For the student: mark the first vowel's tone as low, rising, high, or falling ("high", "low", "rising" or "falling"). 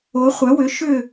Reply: rising